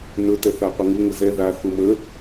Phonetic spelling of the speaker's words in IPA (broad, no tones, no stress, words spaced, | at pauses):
nɵ tɛθaqʷəŋu ŋəzɛ ða θumə